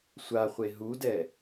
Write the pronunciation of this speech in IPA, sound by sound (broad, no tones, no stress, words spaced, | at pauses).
sʷaχʷe ɦudɛ